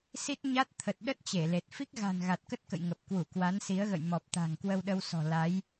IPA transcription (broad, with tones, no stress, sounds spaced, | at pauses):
s i˦˥ t̚ ɲ a˦˥ t̚ t̪ʰ ə˨˩ t̚ ɗ ə˦˥ t̚ t͡ɕ e˧˩ l e˨˩ t̚ f i˦˥ k̚ ɣ a̤˨˩ n ɣ a˨˩ t̚ k ə˦˥ t̚ k ə̰˧˨ j ŋ ə˨˩ p̚ k w u˧˩ k w a˨˦ n s i˨˦ ə̯ ɣ ə̰˧˨ j m ɔ˨˩ p̚ t̪ a̤˨˩ ŋ k w ə˧ w ɗ ə˧ w s ɔ̤˨˩ l a˨˦ j